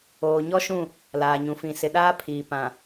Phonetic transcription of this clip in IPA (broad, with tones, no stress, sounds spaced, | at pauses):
oː˨ ɲ ɔ˦ ʃ ũ˦˨ | l aː˨ ɲ ũ˨ f ĩ˨ s ɪ˨ ɗ aː˦ pʰ iː˨ p ã˨